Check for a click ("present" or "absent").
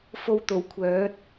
absent